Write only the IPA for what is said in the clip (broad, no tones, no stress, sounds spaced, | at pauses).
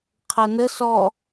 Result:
qʰ ɜ n ə s ɔ